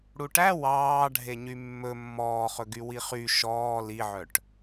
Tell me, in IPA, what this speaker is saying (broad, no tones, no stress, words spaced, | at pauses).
ɽuʈæ wɑː ɖʱeɲymːɵ mːɔːχɵɡy wiχy ʃɔː liʕœʈ